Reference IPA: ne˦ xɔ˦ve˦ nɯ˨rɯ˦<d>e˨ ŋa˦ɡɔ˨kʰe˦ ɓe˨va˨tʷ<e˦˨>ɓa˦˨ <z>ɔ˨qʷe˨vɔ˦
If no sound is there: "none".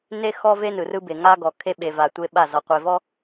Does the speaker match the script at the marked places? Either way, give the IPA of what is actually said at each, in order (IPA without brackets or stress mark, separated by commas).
b, e˦, z